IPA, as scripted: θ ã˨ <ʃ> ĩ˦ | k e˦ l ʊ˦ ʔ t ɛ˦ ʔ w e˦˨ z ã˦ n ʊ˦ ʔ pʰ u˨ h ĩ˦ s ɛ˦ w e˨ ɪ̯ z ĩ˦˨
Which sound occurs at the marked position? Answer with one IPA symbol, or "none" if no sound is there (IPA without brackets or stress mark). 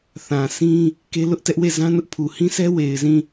s